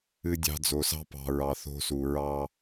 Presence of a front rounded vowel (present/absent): absent